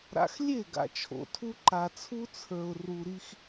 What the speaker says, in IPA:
ɾ a̰˨ x lʲ e˦˨ ɡ a̰˨ t͡ʃʰ o̰˨ tʰ u˦ ǃ a˨ t͡sʰ u˦ t͡sʰ ə˞˨ ʊ̯ r u˨ ɾ i˦ x

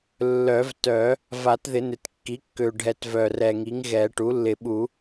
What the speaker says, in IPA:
lː œ˨˩˦ v t œ˨˩˦ | v a˨˩˦ t ð ɪ˨˩˦ n ɪ˨˩ t kː i˩˥ kː ø˨˩ ɖʱ ɛ˨˩˦ t v œ˨˩ r ɛ˨˩ ŋ i˩˥ ŋ ɣ ɛ˨˩˦ ʈ u˩˥ lː ɪ˨˩˦ ɓ u˨˩˦

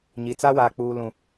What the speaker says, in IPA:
ɲ i˨ t͡s a˦ w aː˨ k͡p uː˨ l ũ˨

